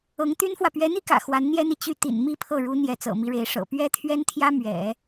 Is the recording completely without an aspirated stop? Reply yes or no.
no